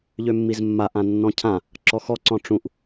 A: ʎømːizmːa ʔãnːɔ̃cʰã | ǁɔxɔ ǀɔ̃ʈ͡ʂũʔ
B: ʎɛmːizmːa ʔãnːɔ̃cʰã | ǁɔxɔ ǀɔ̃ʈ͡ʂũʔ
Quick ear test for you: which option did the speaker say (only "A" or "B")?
A